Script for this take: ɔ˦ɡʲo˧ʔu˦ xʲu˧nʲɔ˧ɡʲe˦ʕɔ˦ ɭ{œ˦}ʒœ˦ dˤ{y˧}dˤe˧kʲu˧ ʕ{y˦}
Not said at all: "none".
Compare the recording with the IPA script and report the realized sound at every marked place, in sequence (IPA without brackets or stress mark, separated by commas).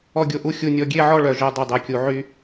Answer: œ˧, y˧, y˦